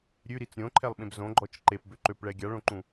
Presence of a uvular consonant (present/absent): absent